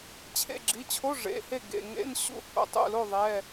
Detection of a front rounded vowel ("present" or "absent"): absent